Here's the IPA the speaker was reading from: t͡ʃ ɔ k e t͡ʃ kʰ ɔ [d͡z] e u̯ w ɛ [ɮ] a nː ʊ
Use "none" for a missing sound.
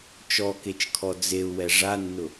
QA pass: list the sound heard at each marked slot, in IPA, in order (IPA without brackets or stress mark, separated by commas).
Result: d͡z, ʐ